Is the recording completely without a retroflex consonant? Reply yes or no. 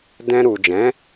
yes